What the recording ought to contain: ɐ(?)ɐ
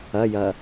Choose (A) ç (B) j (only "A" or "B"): B